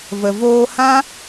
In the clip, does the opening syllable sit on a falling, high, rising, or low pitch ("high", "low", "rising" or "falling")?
low